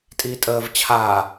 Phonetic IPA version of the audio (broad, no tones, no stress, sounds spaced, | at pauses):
tʼ iː tʼ əː v t͡ɕʰ aː